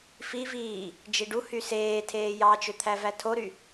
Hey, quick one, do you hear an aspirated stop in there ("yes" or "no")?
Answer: yes